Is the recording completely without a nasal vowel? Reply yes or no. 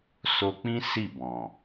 no